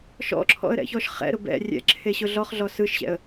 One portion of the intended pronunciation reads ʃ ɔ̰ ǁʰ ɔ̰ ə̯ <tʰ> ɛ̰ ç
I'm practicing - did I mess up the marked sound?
yes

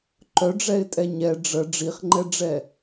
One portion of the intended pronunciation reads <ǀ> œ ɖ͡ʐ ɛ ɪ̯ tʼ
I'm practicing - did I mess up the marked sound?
yes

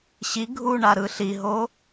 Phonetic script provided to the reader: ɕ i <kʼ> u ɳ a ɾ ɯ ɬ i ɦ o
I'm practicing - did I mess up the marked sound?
yes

